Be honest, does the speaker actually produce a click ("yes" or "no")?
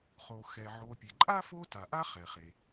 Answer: yes